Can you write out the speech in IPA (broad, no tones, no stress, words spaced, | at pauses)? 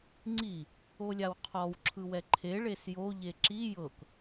ŋ͡ǀi | olʲawqʰɔw ǁʰɯwɛǃʰe ɭesjo ʎeǁi jɤk